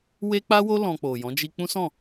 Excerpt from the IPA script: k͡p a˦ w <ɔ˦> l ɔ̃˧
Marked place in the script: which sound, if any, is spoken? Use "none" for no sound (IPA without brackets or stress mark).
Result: o˦